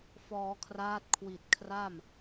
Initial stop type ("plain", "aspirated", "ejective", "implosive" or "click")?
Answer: aspirated